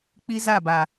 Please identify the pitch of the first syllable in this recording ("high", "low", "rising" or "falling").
high